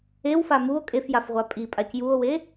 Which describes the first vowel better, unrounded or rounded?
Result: unrounded